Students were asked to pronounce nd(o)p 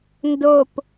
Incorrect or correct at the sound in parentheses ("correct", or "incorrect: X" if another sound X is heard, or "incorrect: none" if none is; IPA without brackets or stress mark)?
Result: correct